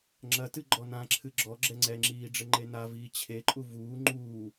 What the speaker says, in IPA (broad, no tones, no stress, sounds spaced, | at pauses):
ŋ͡ǁ ɐ t ɨ ɡ͡ǃ ɔ n ã ǁʰ ɨ ɡ͡ǁ ɔ ɡ͡ǁ ɛ ŋ͡ǀ ɛ ŋ͡ǁ iː ɖ͡ʐ ɘ ŋ͡ǃ e n a v iː t͡ɕʰ e ǃʼ u v uː ŋ͡ǃ uː